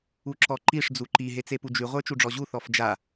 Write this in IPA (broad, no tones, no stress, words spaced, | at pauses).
uǁɔǃiʂ d͡zuǃi ɦet͡sepud͡ʒy ʁʷə˞t͡ʃuɖ͡ʐɔʑu θɔfd͡ʒa